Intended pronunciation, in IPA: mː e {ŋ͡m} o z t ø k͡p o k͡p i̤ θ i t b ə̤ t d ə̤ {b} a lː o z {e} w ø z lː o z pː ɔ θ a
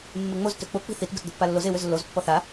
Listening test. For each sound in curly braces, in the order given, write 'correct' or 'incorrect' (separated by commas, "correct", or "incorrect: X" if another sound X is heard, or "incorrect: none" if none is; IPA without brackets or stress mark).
correct, incorrect: pː, correct